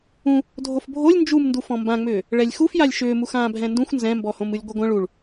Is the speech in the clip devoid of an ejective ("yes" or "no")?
yes